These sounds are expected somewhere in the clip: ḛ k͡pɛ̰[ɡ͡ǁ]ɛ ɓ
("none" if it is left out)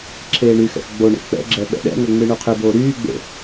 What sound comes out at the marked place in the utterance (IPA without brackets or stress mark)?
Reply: ɡ͡ǁ